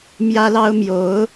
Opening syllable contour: high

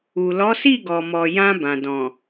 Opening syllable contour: low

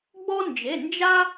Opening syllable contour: high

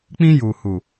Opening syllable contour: high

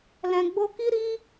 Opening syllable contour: low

